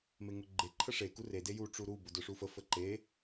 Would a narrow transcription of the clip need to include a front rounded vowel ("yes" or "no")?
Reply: no